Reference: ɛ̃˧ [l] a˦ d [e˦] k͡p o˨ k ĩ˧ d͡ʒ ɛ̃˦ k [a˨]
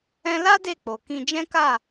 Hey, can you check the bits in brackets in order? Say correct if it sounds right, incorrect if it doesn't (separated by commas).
correct, incorrect, incorrect